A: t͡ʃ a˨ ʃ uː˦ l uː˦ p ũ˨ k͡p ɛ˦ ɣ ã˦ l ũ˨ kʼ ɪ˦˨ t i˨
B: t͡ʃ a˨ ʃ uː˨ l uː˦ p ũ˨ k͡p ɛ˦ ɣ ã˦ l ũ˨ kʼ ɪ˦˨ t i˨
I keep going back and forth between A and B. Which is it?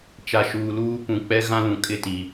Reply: B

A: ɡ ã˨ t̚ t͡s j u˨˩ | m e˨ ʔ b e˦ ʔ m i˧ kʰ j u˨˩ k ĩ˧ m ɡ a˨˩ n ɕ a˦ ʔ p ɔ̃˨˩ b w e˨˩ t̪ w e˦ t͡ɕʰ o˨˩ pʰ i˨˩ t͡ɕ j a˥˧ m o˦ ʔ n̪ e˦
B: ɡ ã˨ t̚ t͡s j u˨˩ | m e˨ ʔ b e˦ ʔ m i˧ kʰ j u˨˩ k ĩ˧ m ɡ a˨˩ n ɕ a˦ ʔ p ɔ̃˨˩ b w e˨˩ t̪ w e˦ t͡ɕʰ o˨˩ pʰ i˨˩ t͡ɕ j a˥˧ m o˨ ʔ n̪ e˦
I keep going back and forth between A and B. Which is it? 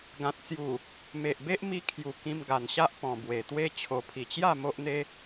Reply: A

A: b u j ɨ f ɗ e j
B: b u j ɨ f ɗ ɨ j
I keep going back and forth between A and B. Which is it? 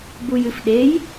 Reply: A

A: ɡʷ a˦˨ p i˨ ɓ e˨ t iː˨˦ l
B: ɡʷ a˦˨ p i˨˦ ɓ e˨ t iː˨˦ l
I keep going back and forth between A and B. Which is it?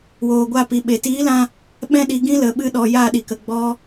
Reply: A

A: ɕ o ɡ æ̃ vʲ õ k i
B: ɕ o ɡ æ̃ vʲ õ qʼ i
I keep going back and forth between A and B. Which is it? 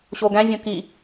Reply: A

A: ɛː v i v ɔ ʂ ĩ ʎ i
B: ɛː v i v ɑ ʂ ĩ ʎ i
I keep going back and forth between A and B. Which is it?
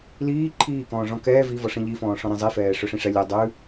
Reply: A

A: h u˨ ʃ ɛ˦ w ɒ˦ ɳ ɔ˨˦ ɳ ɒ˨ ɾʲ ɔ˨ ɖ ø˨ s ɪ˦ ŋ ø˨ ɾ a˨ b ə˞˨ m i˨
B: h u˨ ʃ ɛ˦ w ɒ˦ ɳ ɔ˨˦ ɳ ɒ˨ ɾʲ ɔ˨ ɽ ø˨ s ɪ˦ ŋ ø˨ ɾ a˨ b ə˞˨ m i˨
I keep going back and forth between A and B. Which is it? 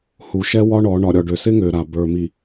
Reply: A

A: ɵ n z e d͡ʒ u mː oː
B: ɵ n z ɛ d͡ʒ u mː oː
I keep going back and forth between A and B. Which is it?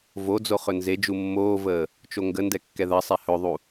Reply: A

